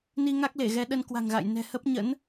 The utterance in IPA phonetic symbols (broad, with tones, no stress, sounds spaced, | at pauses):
n i˧ ŋ a˦˥ k̚ l e˧˩ ɣ ɛ˨˦ ɗ ə˧ n k w a̤˨˩ ŋ ɣ a̰˧˨ j n ɛ̤˨˩ h ə˦˥ p̚ ɲ ə̰˧˥ n